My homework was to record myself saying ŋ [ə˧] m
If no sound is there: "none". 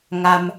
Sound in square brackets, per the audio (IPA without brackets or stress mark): a˧